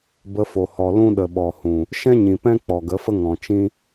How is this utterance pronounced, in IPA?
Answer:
b ə˧ f o˨ h ɔ˨ l ũ˦ ɗ ə˨ ɓ ɔ˨ h ũ˨ | ʃ ɛ̃˦ ɲ ĩ˨ p ɛ̃˦ k͡p ɔ˨ ɡ ə˨˦ f ə˦ ŋ ɔ̃˨ t͡ʃ ĩ˦

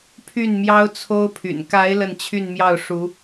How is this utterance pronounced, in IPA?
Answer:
pʰ y˥˩ n m j ɑ˥ ʊ̯ t͡sʰ o˥ ʊ̯ pʰ y̰˨˩ n k a˧˥ ɪ̯ l ə˥˧ n t͡ɕʰ y˥˧ n m j ɑ˥˩ ʊ̯ ʂ u˧˥

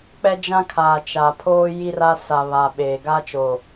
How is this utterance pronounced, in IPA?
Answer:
k͡p ɛ˦ d͡ʒ ã˦ kʰ aː˨ t͡ʃ a˨ pʰ oː˦ j i˦ r a˦ s a˨ β a˨ ɓ eː˨ ɡ a˦ t͡ʃ o˨

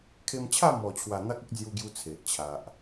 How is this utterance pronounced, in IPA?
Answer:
kʰ e˧ m t͡ɕʰ a˥˧ m ɔ˨˩ t͡ɕʰ w a˨˩ n̪ a˦ k̚ ə˦ k̚ d͡z j u˧ ɡ j u˧ t͡sʰ e˨ ʔ t͡ɕʰ a˨ ʔ

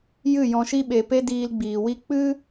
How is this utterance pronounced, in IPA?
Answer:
j ɨ˦˨ j ɔ̃˧ ʃ i˦ ɓ e˨ p e˧ d iː˧ l ɡ͡b iː˨ w i˦ k͡p ɨ˦

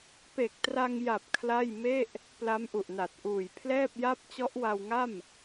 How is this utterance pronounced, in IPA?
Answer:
p e˨˩ k̚ t r a˧ ŋ j a˨˩ p̚ kʰ l a˥˩ j m e˥˩ ʔ | p l a˦˥ m ʔ u˨˩ ʔ n a˨˩ t̚ ʔ uː˨˩ j pʰ l ɛː˥˩ p̚ j a˥˩ p̚ t͡ɕ ɔ˦˥ ʔ w a˧ w ŋ a˥˩ m

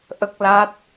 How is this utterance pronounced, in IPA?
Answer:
ʔ ə˦˥ k̚ l a˦˥ t̚

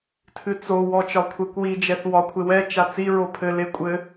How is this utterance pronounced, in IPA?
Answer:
tʰ ɨ t͡s o w ɔ t͡ʃ ɒ kʷʰ ɛ kʷ w i d͡ʒ ɛ θ w ɒ kʷʰ e w ɛ t͡ʃ a t͡s i ɹ o pʰ ɘ l e kʷʼ ɘ

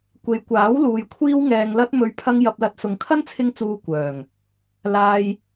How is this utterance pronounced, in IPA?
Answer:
kʷ e˨ j kʷ aː˨˥ w l uː˨ j kʷʰ iː˧ w ŋ ɛː˨ ŋ l ɐ˧ t̚ m ɵ˨˧ ɥ pʰ ɐ˧ ŋ j ɐ˨ p̚ l ɐ˨˥ t̚ s ʊ˨˧ ŋ kʰ ɐ˥ n t͡sʰ ɪ˧ ŋ t͡s uː˨ kʷ œː˨˩ ŋ | l aː˧ j

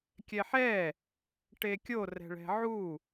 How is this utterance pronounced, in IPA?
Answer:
kʲ ɛ ħ ɛ | ʈ e kʲ o r ɛ̤ ɭ ɛ̤ ʕ u

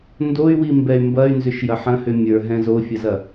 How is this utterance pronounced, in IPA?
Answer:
n d o y̯ w i m b ɛ y̯ m b ɐ y̯ n z ʏ ʃ j ɐ ħ ɐ̃ h ʏ mʲ ə˞ ɦ ɛ̃ z o fʲ ɐ z ɐ

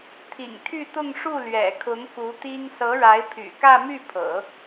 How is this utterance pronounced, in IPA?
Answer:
t̪ʰ ḭ˨˩ ŋ t̪ʰ y˥˧ t̪ ʊ˥˧ ŋ ʂ u˥˩ l ɥ ɛ̰˨˩ kʰ ʊ˧˥ ŋ k u˧˥ t̪ i˥ ŋ s ɤ˧˥ ɻ a˧˥ ɪ̯ pʰ y̰˨˩ k ä˥˧ m y˥˩ pʰ ɤ̰˨˩˦

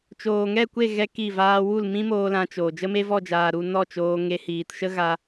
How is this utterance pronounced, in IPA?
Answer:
t͡ʃ oː˨ ŋ ɛ˦˨ kʷ e˦˨ ɣ ɛ˦ k i˦˨ v aː˧ w u˦˨ l m ĩ˦ m oː˧ l ã˧ t͡ʃ oː˨ d͡ʒ ə˦ m e˦ v ɔ˦˨ d͡ʒ aː˨ ɾ u˧ n ɔ˦˨ t͡ʃ oː˧ ŋ e˧ h iː˨ t ʃ ə˦ ɣ a˧

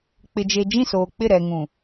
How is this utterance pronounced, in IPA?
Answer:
k͡p ɪ˨ d͡ʒ e˨ d͡ʒ ĩ˦˨ s oː˨ k͡p ɪ˦˨ ɾ ɛ˨ ŋ ũ˨

